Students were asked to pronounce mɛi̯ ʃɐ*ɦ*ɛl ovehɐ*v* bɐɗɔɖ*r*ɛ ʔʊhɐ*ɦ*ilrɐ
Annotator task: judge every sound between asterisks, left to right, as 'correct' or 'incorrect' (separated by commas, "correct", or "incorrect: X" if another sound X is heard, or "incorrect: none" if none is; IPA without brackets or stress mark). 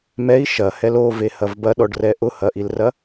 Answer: incorrect: h, correct, correct, incorrect: ʔ